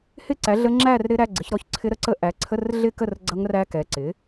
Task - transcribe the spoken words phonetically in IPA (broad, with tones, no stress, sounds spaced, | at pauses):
h ɪ˥˧ ǀ æ˨˥ ɮ ə˦˥ ŋ͡ǁ æ˥˧ r ɾ ɪ˦˥ ɾ æ˧˥˧ ɡ͡ǀ ɪ˨˥ ç ɾ ɔ˥˧ ç ǀʰ ɪ˦˥ ɾ ə˥˧ ǀ ə˦˥ ʔ æ˨˥ ǀʰ ə˧˥˧ r ɮ ɪ˥˧ k ə˥˧ r ɡ͡ǀ ʌ˦˥ ŋ r æ˦˥ k ɛ˨˥ ǀ ɪ˨˥